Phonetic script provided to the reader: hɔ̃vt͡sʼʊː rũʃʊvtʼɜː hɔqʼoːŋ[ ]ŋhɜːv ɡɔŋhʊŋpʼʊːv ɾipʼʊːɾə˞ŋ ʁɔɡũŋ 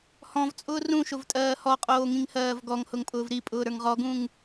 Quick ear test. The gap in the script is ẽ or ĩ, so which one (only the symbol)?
ĩ